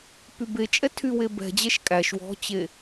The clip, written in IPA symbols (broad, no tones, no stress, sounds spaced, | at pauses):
p y b e t͡ʃʼ ɛ tʰ y w e b ɛ̤ d͡ʑ ɛ ʃ kʼ æ ʃ w ɔ̤ t͡ɕ e